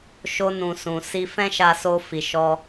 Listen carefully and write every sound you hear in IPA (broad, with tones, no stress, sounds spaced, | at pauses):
ʃ o˧ n ũ˨ s ũ˨ s i˧ f ɛ̃˦ ʃ a˧ s o˧ f i˨ ʃ ɔ˧